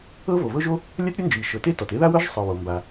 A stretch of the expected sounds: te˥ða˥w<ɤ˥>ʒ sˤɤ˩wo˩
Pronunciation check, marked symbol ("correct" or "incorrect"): correct